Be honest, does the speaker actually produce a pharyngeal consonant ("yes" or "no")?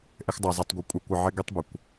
yes